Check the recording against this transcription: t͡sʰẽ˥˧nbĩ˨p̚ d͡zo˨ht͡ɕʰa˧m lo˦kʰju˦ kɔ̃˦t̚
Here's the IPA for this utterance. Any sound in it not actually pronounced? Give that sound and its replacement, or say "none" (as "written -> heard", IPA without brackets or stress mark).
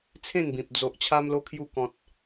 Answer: h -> ʔ